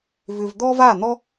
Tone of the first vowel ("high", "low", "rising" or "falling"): low